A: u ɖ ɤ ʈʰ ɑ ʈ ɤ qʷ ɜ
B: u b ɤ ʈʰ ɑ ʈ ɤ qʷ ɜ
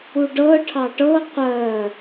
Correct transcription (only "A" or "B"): A